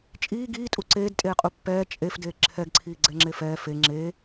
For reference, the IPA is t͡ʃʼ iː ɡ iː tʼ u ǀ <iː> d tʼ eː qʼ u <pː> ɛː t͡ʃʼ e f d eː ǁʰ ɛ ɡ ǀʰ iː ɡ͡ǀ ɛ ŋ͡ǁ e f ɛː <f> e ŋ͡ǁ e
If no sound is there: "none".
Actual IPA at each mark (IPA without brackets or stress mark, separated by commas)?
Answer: eː, pː, f